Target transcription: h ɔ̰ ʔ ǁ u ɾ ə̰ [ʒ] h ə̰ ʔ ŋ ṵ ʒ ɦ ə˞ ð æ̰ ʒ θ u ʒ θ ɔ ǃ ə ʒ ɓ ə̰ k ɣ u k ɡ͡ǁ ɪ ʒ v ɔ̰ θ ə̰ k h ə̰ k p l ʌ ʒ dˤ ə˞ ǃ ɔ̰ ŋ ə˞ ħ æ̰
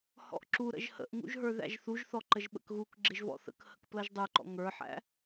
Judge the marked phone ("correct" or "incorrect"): correct